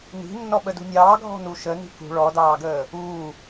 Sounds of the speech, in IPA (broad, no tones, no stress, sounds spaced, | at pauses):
n i̤ nː ɔ ɓ ə d ṳ nʲ ɑː ɡʱ ɔ̤ n u ʃ ə n i̤ k ṳ ɭ ɔ d ɑː ɡ əː | uː